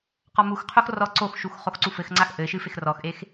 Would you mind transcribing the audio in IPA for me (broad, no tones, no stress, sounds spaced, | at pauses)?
q ɔ m u x qʰ o x r ɔ ǀ o x ʃ u x χ o x ǀ u f ɘ x ŋ͡ǀ a x ʔ ɘ ʃ ɨ f e x r ɔ x ʔ e x